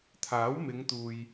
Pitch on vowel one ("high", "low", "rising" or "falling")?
rising